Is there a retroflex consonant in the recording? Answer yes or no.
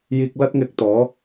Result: no